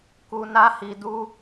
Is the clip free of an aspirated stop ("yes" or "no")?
yes